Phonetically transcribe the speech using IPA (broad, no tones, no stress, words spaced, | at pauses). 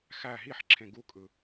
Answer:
xæ ɦiħǁʰẽ ɡukʼɯ